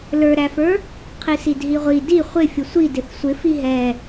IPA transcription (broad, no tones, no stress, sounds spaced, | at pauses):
l ə˞ ɾ æ f ə˞ | qʰ i s i d ɦ i ʁʷ i d i χʷ ɪ fʲ ʊ sʷ i d ɪ θ sʷ ɪ f i ɦ ɛ